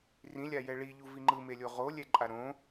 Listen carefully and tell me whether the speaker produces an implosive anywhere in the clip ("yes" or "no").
no